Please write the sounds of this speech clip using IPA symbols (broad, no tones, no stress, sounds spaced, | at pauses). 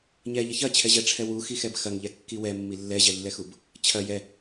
ɲ ɛ ʎ ɐ ç ɐ t͡ɕʰ ɛ ʑ ɛ ʈ͡ʂʰ ɛ w u x i x ɛ b x ɐ ŋ ʎ ɛ kː i w ɛ mː i lː ɛ ʑ ɛ lː ɛ x u b | t͡ɕʰ ɐ j ɛ